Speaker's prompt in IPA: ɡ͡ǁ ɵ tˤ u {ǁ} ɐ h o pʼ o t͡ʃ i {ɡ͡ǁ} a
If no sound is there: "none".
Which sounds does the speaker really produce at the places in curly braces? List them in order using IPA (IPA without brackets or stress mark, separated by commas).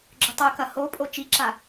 k, ǁ